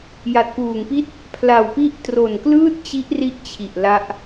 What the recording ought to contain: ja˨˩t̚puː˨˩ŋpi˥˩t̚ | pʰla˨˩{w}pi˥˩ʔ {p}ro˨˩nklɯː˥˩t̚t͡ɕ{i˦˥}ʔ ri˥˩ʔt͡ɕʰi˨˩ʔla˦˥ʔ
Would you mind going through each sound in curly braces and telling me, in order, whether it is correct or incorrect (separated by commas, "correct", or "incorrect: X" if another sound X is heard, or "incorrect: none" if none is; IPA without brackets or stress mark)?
correct, incorrect: t, correct